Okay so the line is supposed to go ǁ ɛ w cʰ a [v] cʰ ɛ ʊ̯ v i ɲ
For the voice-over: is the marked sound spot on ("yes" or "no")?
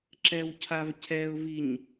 yes